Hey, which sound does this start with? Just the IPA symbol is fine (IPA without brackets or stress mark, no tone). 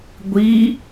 ɡʷ